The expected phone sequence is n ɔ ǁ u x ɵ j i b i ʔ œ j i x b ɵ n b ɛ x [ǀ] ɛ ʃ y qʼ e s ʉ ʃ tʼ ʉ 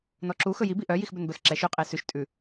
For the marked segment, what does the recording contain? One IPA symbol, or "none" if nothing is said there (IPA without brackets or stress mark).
ǁ